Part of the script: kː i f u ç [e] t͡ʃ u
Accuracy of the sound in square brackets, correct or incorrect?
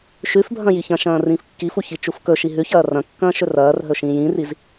incorrect: i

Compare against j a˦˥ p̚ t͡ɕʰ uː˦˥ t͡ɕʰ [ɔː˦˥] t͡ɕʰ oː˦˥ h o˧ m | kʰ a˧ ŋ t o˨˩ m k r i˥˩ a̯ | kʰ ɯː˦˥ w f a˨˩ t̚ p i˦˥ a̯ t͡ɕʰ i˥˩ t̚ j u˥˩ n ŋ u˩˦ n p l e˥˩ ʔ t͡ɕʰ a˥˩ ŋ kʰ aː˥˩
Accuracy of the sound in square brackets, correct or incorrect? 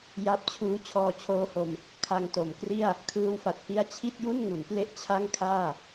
incorrect: ɔː˧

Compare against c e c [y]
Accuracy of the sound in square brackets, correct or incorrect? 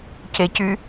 correct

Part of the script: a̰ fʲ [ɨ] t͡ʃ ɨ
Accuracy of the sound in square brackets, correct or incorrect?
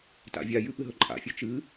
correct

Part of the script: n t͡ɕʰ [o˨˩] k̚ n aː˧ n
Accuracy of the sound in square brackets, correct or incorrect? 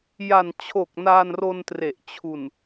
correct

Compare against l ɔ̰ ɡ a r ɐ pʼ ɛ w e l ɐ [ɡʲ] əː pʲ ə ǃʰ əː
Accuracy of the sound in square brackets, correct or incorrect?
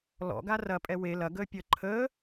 incorrect: ɡ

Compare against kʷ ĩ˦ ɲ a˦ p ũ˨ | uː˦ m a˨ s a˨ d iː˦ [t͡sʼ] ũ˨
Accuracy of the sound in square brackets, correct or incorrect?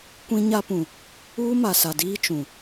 incorrect: t͡ʃ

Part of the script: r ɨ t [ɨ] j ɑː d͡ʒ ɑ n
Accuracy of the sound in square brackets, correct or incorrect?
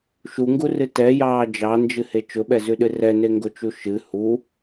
incorrect: ɛ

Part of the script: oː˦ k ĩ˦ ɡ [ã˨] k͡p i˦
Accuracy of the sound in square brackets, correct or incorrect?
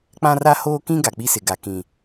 incorrect: a˨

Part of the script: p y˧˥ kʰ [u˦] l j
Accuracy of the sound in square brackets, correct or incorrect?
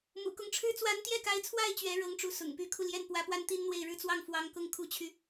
incorrect: u˧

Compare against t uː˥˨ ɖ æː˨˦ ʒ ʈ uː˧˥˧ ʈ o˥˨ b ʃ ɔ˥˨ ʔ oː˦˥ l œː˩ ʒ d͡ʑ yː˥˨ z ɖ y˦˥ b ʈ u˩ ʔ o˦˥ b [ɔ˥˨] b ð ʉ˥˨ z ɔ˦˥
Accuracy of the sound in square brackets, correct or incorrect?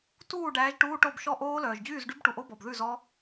incorrect: ɔ˩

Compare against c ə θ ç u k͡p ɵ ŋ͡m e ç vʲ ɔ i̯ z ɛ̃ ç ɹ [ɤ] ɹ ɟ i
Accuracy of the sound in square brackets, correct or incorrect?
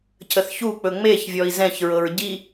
correct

